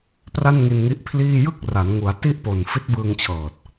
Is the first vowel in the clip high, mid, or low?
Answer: low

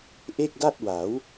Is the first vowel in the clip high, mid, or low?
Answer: mid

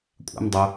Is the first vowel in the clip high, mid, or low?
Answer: low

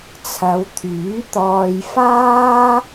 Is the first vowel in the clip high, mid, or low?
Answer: low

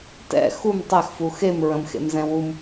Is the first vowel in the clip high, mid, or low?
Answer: mid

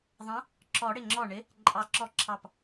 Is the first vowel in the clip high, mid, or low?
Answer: mid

